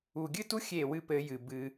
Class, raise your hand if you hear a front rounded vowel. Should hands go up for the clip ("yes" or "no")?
no